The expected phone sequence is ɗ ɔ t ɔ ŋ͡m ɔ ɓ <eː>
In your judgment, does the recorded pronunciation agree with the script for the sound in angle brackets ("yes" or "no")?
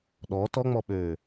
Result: no